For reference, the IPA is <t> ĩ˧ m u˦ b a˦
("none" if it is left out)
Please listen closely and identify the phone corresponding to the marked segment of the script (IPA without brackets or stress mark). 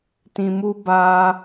t